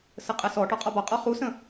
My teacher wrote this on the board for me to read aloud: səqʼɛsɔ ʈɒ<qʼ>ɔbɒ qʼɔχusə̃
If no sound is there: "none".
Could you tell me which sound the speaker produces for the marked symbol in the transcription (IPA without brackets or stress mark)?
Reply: qʼ